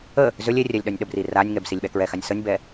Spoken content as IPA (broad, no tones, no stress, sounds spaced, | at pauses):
ə | z ø lʲ e rʲ ɛ lʲ ɗ œ nʲ ɗ ə b r i r a nʲ ŋ ɛ b s i lʲ ɓ ɛ k ɹ ɛ x a nʲ s ə nʲ b ɛ